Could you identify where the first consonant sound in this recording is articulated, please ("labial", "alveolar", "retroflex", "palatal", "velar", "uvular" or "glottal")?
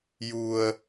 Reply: palatal